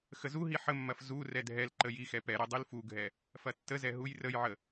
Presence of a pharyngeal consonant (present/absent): present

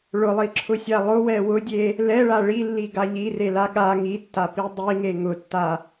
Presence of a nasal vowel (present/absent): absent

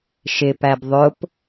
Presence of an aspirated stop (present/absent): absent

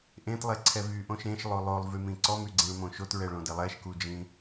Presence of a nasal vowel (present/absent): present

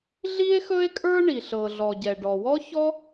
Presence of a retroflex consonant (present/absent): present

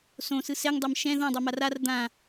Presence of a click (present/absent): absent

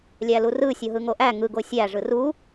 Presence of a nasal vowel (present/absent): absent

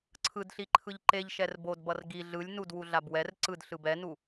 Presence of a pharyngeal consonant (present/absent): absent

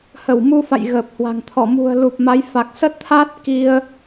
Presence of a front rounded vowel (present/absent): absent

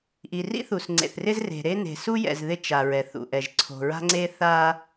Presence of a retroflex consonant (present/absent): absent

